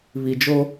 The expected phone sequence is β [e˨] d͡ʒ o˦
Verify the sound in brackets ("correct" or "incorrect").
incorrect